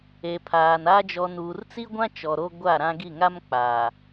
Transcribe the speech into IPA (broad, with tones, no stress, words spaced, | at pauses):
e˨ pʰaː˨n a˦ d͡ʒɔ˨nuː˨rt͡si˦ɡʷã˦ t͡ʃɔ˨ɾo˦ ɡʷa˦˨ɾã˦ɡi˦˨ ŋa˦mk͡paː˨